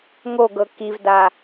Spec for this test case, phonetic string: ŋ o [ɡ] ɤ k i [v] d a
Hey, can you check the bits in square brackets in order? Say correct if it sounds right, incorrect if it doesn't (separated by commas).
correct, correct